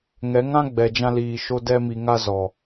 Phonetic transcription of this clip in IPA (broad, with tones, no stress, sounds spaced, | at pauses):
ŋ ɛ˨˦ ŋ ã˦ ɡ͡b ɛ˨ d͡ʒ ã˧ l iː˨ ʃ o˧ d ɛ˦ m i˧ ŋ a˦ z ɔ˨